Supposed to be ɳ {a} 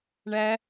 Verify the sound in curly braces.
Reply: incorrect: æ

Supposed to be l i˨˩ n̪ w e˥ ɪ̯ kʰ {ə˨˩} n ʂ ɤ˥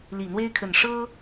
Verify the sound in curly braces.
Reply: correct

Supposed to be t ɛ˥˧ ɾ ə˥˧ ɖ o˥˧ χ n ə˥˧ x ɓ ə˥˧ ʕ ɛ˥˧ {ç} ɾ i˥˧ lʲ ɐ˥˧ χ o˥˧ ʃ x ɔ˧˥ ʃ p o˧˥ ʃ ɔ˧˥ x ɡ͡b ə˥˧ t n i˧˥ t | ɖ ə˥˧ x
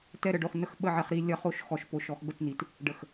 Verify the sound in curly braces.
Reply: incorrect: χ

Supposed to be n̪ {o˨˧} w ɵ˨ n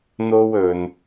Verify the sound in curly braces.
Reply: incorrect: o˥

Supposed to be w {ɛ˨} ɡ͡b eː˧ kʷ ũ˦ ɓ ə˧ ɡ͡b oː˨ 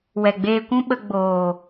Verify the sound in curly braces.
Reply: correct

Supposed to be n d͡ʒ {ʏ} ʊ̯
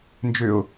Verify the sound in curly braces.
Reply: correct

